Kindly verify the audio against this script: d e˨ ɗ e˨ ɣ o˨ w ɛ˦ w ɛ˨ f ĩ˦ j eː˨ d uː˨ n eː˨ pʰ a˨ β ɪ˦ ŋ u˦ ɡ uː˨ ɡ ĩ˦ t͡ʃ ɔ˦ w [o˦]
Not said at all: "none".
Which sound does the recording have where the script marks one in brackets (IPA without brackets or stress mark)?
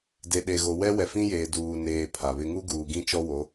o˨˦